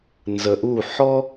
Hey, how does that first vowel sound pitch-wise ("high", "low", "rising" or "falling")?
low